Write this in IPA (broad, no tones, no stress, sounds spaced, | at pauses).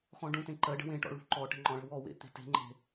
x ɔ̃ ɖ ũ t ẽ ǃ ɜ ɖ ə̤ w ẽ ʈ ɔ̰ ɭ ṳ ǃ ɔ ʈ ə̤ ŋ͡ǃ ɔ̃ ɭ ə̤ w ɔ w ḛ t̪ e̤ t e̤ ŋ͡ǃ e̤